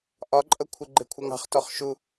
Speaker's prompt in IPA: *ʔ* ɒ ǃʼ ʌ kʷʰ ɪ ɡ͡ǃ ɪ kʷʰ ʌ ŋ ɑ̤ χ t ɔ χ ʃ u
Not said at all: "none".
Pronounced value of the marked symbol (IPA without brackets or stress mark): ʔ